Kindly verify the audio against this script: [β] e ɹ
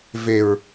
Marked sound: incorrect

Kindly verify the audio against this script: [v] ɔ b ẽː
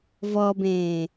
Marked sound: correct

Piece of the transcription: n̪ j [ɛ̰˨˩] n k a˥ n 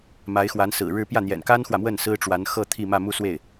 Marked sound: correct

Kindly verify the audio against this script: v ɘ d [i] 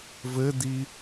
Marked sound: correct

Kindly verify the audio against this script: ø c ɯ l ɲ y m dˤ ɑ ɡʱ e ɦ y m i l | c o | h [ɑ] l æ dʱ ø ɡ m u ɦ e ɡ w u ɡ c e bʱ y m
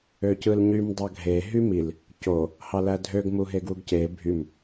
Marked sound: correct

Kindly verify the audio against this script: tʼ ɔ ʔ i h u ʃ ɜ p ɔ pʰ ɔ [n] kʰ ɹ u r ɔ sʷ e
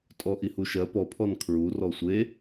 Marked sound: correct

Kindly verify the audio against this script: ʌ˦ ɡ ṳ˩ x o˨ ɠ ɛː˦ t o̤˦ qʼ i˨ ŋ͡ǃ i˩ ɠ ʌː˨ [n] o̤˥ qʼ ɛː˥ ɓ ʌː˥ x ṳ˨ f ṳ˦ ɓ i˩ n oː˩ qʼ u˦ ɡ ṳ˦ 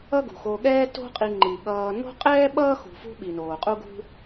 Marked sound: correct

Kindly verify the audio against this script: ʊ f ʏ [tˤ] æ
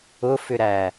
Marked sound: incorrect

